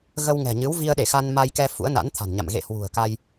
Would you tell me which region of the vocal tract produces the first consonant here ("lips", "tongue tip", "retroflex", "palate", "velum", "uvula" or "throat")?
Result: velum